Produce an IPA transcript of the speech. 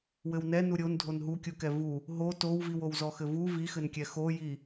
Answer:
w ɘ w n ɛ n u ɾʲ o n dʱ o n ɦ u kʲ u k ɛ v u | ɦ o t o w v i w o w z ɔ x ɘ v u v i x ɘ n kʲ ɛ x o j i

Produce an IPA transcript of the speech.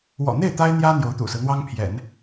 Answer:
w ɔ̰˨˩ n̪ e˥˩ ɪ̯ t̪ a˥ ɪ̯ n̪ j ä˥ n̪ j o˧˥ ʊ̯ t̪ ṵ˨˩ s ɹ̩˦ n̪ w ɑ˥ ŋ pʰ j ɛ̰˨˩˦ n

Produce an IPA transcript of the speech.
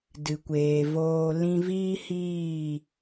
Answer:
d ɨ˨ kʷ eː˨ v oː˧ l ĩ˧ v iː˦ h iː˦˨

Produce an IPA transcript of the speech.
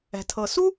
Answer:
ɛ̤˩ tʰ ɤ˩ s u˥

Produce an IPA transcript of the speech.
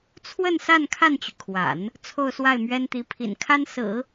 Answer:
t͡sʰ w ə˥˧ n s a˥˧ n kʰ a˥˩ n t͡ɕ y˩ kʰ w a̰˨˩˦ n | t͡sʰ o˥˧ ʊ̯ s w a˥˩ ɪ̯ m ɥ ɛ˥ n t̪ i˧˥ pʰ ḭ˨˩ n kʰ a˥ n s ɹ̩˨˩˦

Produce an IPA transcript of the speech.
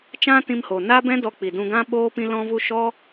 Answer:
t͡ʃ ã˦ t ĩ˧ m h o˨ n a˦ b ɛ̃˦ d ɔ˧ k͡p i˨ d ũ˧ ɡ ã˦ ɓ oː˦ p ĩ˧ l ɔ̃˧ v u˧ ʃ ɔ˦

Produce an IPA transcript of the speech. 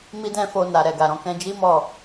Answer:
m i˦ d ɛ̃˦ f o˧ n a˨ ɾ ɛ˨ ɡ a˨ ɾ ɔ̃˧ k ɛ̃˧ d͡ʒ i˦ m ɔ˦˨

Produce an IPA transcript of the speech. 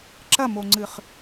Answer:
ǁ ɐ m o ŋ͡ǀ ɨ χ

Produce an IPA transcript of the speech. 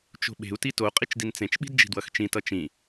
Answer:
t͡ʃ o̤ ɓ e̤ u̯ t i t o qʼ i t͡ʃ d i n t͡s ẽ t͡ʃ ɓ i̤ d d͡ʒ i̤ d w ʌ x t͡ʃ ĩ t ʌ t͡ʃ ĩ

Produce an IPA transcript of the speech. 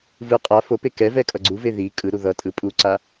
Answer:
v ɯ qʼ a f o p e k ɛ v ɛ kʼ ʌ ɡ͡ǀ u v e ð i kʼ ɯ ɾ u ð ʌ tʼ ɯ pʼ u ǀ a

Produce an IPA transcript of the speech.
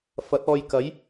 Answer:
f ɐ˨˥ t̚ ɔː˧ j k ɐ˨˥ j

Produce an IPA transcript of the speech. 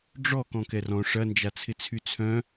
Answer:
ɖ͡ʐ ɔ k ɔ̃ k ɛ r ɔ̃ ʂ ɐ n d͡ʒ a t͡sʰ ɪ t͡sʰ y t͡sʰ œ̃

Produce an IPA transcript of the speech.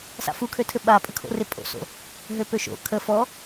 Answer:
s a̰ f u kʰ ø tʰ ɘ ɓ a pʼ ə kʰ o̰ r ɪ pʼ o̰ s o̰ | ɦ ø p ø ʃ o̰ kʰ ə f ɔ

